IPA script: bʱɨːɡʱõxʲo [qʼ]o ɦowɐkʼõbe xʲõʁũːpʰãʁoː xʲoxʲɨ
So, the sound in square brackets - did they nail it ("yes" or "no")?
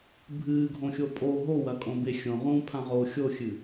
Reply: no